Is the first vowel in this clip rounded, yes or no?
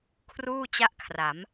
yes